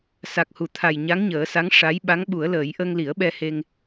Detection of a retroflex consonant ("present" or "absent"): present